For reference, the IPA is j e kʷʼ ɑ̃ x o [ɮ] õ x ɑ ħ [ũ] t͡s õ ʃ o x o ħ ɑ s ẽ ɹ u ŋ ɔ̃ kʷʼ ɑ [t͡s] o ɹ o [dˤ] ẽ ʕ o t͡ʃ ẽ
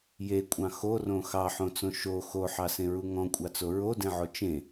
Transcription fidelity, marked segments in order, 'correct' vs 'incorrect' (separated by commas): incorrect, incorrect, correct, incorrect